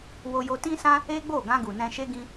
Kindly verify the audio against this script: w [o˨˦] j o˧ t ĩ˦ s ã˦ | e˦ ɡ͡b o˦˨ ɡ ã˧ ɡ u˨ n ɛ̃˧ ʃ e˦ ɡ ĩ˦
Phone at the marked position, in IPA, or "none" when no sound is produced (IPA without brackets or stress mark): o˧